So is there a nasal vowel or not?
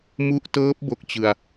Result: no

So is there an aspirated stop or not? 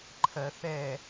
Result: yes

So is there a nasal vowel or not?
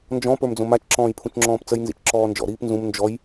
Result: yes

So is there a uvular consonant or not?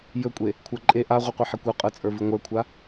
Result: yes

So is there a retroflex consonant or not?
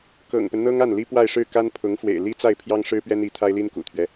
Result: yes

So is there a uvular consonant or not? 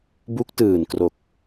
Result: no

